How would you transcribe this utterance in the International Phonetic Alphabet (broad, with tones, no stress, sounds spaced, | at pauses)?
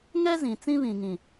ŋ ɛ˦ z ĩ˨ t͡s ĩ˦ β ĩ˨ ŋ ĩ˨